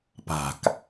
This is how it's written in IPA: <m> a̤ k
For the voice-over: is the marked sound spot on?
no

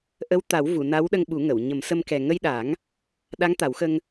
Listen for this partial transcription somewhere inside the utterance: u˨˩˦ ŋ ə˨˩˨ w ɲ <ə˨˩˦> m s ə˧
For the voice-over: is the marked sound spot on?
yes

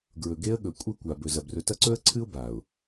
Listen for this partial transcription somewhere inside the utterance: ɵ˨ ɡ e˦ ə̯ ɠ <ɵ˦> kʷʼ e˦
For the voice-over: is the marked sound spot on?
no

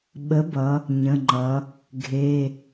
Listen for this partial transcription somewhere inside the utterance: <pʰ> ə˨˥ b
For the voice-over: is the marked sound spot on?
no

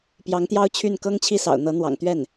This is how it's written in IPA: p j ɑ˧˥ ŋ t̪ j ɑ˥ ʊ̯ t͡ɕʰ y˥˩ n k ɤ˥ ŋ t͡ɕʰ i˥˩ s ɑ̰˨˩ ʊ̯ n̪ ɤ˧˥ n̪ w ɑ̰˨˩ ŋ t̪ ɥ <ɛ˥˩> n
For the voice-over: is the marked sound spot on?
yes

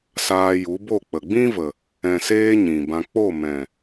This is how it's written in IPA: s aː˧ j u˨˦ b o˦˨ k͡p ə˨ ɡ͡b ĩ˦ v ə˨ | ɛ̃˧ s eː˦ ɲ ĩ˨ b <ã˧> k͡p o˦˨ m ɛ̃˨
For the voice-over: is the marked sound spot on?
yes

